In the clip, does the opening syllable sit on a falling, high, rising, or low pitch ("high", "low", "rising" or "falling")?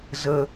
high